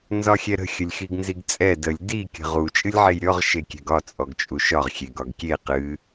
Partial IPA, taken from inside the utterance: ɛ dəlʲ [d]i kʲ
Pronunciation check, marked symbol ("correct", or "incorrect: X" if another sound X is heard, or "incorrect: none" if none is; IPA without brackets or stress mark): correct